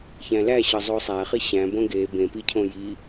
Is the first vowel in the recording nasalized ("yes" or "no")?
yes